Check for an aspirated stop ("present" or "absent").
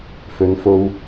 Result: absent